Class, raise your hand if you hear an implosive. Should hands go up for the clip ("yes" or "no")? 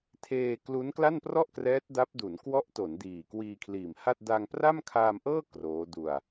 no